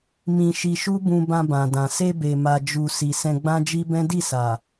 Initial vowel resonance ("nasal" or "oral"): nasal